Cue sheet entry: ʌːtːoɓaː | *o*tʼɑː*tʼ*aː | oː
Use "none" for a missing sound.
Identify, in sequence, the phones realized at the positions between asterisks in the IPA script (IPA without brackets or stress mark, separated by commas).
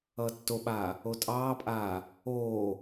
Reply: o, pʼ